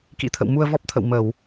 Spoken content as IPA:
k ḭ˧˥ t̪ʰ ə̰˧˨ w m u˧ ə̯ v ɔ˦˥ p̚ t̪ʰ ə̰˧˨ w m ə˧˩˨ w

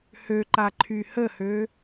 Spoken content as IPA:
h ø ǃ a ǃʰ y h ə h ø

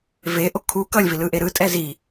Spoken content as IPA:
v e ʔ o kʰ u k ʌ lʲ v i l ɯ ʔ e ɾ ɯ tʼ ɛ z i

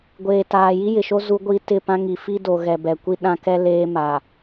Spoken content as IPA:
ɡʷ eː˨ t aː˨ j i˦ j ɪ˨ ʃ o˦ z u˦ ɡʷ i˦ t ɪ˦˨ p ã˦ ŋ i˨ f i˦ d o˨ ɣ ɛ˨ b ɛ˨ kʷ i˦ ɗ ã˦ k ɛ˦ l eː˦ m a˨

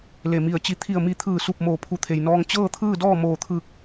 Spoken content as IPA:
l e˧˩ m i˧˩ ə̯ t͡ɕ i˧˥ t̪ʰ i˧˩ ə̯ m i˧˩ t̪ʰ ɯː˧˩ s u˧˩ p̚ m oː˧˩ pʰ u˧˩ t̪ʰ e˩ j n ɔː˧ ŋ t͡ɕ ɤː˥˨ t̪ʰ ɯː˥˨ d ɔː˥˨ m oː˧˩ t̪ʰ ɯː˧˩ k̚

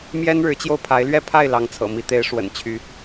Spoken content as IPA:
m j ɛ˦ n ɻ ɻ̩˨˦ t͡ɕ j o˧ ʊ̯ pʰ a˨˦ ɪ̯ l ɥ ɛ˥˨ pʰ a˥˨ ɪ̯ l ɑ˨˦ ŋ t͡sʰ ɤ̰˨˩ m i˨˦ t̪ e˨˦ ɪ̯ ʂ w ə̰˨˩ n t͡ɕʰ y˨˦

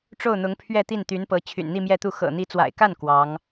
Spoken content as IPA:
ʈ͡ʂ o˥˩ ʊ̯ n̪ ʊ˧˥ ŋ pʰ ɥ ɛ˥˧ t̪ i˥˩ n t̪ y˧˥ n p ɤ˧˥ t͡ɕʰ y̰˨˩ n n̪ i˥˧ m j ɛ˥˧ t̪ u˥˩ x ɤ̰˨˩ n̪ i˧˥ t͡s w a̰˨˩ ɪ̯ k a˥˩ n k w ɑ˧˥ ŋ

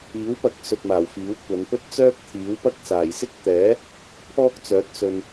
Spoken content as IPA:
iː˨˥ w p ɐ˨˥ k̚ s ɵ˨ t̚ m aː˨˩ w f iː˨˥ w kʷ ɐ˨˧ n p ɵ˥ t̚ t͡s œː˥ k̚ t̪ʰ iː˨˥ w p ɐ˥ k̚ s aː˨˩ j s ɪ˥ k̚ t̪ ɛː˨˥ | pʰ ɔː˥ k̚ t͡s œː˨˥ t̚ s ɵ˧ n

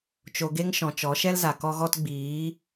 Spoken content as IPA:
t͡ʃ o˧ ɡ e˦ ŋ ʃ ɔ̃˨ t͡ʃ ɔ˨˦ ʃ ɛ˦ l z a˨ k ɔ˦ ɣ ɔ˦ t ɡ͡b iː˨˦

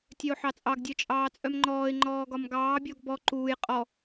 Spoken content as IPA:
tʲ œ ʊ̯ ħ ɑ t͡sʼ ɑ ɡ dʲ œ t͡ʃʼ ɑː t͡sʼ œ m ŋ͡ǃ ɔː ɪ̯ ŋ͡ǃ ɔː ɡ ɒ m ɡ ɑː bʲ ɔ ɡ b ɔ ǃ uː j qʼ ɔ

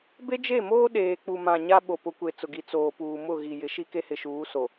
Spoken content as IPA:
b e˦ d͡ʒ e˦˨ m oː˦ ɗ eː˨ k͡p u˨ m ã˨ ɲ a˦ ɓ o˨ p ʊ˨˦ kʷ e˨ t͡s ʊ˨ ɡ i˨ t͡s oː˨ p uː˨ m ʊ˦˨ ɣ i˨ j ɪ˨˦ ʃ i˦ k e˦ h ɪ˨ ʃ uː˨˦ s o˨

